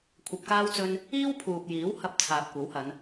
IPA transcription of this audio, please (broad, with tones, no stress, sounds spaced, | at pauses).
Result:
kʷʰ ɐ˧ p̚ k aː˥ w t͡s ɵ˥ n | iː˥ w pʰ uː˨ p̚ j iː˨˥ w h ɐ˧ p̚ t͡sʰ aː˨ p̚ kʷ ɐ˨˥ w h ɐ˨˧ n